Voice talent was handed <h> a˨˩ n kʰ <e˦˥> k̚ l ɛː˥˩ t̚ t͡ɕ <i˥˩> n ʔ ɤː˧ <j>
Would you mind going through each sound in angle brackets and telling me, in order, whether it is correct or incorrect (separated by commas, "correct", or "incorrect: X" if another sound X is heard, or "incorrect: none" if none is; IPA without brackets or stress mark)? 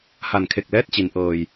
correct, incorrect: e˨˩, incorrect: i˩˦, correct